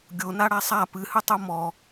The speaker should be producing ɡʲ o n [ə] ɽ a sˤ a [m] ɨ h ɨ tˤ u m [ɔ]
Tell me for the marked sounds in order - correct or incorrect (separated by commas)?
incorrect, incorrect, correct